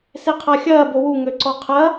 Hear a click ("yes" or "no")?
yes